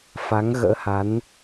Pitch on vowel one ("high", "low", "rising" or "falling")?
rising